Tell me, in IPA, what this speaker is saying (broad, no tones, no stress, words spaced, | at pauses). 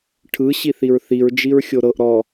ʈʰɯ ɕiθiɹθiɹ d͡ʒiɹxʲoɾɤʔ ɾɔ